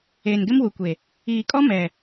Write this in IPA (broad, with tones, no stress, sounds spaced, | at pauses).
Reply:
eː˨ n ɡ ɪ˦ m w u˨ kʷ e˨ | iː˨ kʼ ɔ˦ m ɛ˨